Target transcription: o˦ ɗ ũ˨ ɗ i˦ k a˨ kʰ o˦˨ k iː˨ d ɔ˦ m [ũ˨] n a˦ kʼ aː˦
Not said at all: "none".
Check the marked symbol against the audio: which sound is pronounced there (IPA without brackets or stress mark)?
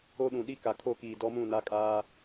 ũ˦˨